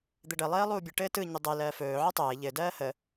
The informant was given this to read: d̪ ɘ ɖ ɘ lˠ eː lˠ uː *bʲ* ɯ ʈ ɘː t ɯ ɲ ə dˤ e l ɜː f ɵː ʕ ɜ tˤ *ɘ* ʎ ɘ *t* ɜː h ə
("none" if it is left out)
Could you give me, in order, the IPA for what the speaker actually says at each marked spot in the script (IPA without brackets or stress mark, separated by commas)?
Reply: bʲ, ɘː, d